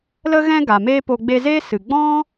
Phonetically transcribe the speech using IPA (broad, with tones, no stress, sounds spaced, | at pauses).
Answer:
l ə˧ ɣ ɛ̃˧ ɡ a˨ m eː˦ p o˧ ɡ͡b e˧ z eː˦ s ɨ˨ ɡ͡b ɔ̃˦